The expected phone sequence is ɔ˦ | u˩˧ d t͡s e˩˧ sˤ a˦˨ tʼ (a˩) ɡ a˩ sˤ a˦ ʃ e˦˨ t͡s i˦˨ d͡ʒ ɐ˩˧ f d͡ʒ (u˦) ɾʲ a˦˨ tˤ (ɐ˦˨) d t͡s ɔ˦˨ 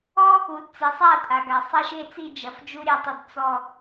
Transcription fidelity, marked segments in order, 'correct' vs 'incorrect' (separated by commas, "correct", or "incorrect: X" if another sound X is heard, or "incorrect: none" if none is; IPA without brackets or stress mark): correct, correct, correct